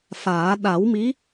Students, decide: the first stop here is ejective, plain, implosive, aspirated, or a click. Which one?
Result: implosive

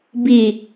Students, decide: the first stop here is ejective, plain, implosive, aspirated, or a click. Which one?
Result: plain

